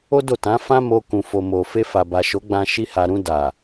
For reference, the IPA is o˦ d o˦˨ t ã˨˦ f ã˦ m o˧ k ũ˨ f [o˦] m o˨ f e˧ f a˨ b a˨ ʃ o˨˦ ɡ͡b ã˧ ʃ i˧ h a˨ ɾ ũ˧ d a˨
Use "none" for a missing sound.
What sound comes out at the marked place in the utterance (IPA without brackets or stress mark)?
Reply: o˨